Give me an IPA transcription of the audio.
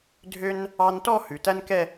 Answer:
dʱ ø˥ n | ɑ˧ n t ɔ˥˧ h ʉ˩˧ t æ˥ n k ɛ˥˧

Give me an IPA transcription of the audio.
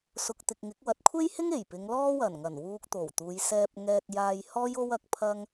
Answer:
s ʊ˨ k̚ t̪ ɪ˨ k̚ ŋ ɪ˨˥ k̚ w ɐ˨˥ t̚ kʷʰ e˥ j h ɪ˥ ŋ e˨˩ j p ɪ˨˧ ŋ l ɔː˥ w ɐ˨˩ n ŋ ɐ˨˩ n w uː˧ k̚ t̪ o˨˩ w t̪ uː˨˧ j s ɛː˧ p̚ ŋ ɛː˧ t̚ j aː˧ j h ɔː˥ j o˥ w ɐ˨˥ k̚ pʰ ɐ˥ ŋ

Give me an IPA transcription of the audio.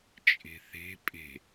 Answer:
t͡ʃʼ e̤ θ e̤ pʼ e̤

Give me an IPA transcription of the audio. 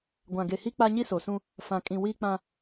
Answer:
ɡʷ ã˨ ɡ e˨ h i˦ k͡p a˦ ɲ i˦ s o˨ s ũ˦ | f ã˨ kʼ ĩ˨ w iː˦ k͡p ã˦

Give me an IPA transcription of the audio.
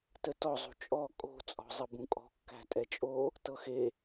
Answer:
t ə t ɔ zˤ ṳ t͡ʃʼ ɔ kʼ o̤ t͡sʼ ɔ̤ zˤ ə b ũ kʼ ɔ̤ kː æ̤ tʼ ɛ t͡ʃʼ o | t ɤ x e

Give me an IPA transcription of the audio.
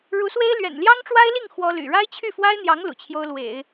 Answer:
ɻ u˧˥ s w e˥ ɪ̯ l ɥ ɛ̰˨˩ n l j ɑ˥ ŋ ʈ͡ʂ w a˥ ɪ̯ l i˥˩ ŋ x w ɔ˥ l y̰˨˩ ɻ a˥ ɪ̯ t͡ɕʰ y˥˩ f w a˥ ɪ̯ n̪ j ɑ˧˥ ŋ l ṵ˨˩ t͡ɕʰ j o˥ ʊ̯ l w ḛ˨˩˦ ɪ̯

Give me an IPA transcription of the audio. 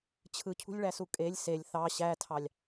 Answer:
t͡ɕʰ ɯ cʰ ṳ lʲ ɭ æ s u kʼ e lʲ s e lʲ θ ɑ ɕ æ tʰ ɑ lʲ

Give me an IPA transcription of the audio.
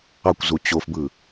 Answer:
ɑ kʷ z u t͡ɕ o f b ɯ

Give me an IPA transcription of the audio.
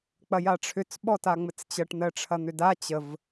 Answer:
k͡p ɐ j a ʈ͡ʂʰ ʏ t͡s ɓ ɔ t a ŋ͡m ɘ t͡s t͡ɕ ɐ ʈ n̪ ɜ ʈ͡ʂʰ ɐ n̪ ʏ d a t͡ɕ ə v

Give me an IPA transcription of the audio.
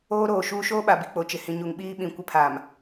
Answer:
oː˦ ɾ oː˨ ʃ uː˦ ʃ oː˦ ɓ a˨ b i˨ k͡p o˨ t͡ʃ ɪ˨ h ĩ˨ ɲ u˨ ŋ ɓ iː˦ ɓ ĩ˨ kʷ ɪ˦ pʰ aː˨ m

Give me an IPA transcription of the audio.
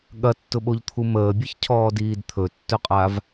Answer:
ɠ ɐ tː ʊ ɓ o ʎ t̪ʰ u m əː bʲ ɨ ç cʰ ɔː d iː d t̪ʰ ɵ tː ɵ qʼ a v

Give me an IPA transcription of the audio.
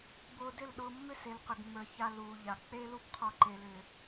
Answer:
b ʊː˧ d ʏ˦˨ l ɗ ʊː˧ mː ʏ˦ s e˨ l q ʏ˨ ɡ mː ə˞˨ ç a˧ l uː˨ ʎ a˨ k͡p e˦ l u˦ b qʰ ɔ˧ ǃ e˨ l ʏː˨

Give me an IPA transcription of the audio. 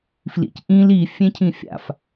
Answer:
f l ḭ c ʔ ĩ l i fʲ ẽ cʰ ĩ fʲ a̰ f

